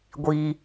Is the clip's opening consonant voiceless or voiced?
voiced